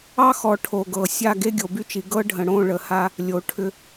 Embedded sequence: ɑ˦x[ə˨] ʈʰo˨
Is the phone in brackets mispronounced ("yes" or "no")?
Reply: yes